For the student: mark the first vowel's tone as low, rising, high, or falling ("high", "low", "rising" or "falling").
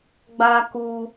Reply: high